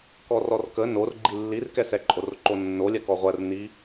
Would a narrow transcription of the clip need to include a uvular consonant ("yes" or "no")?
yes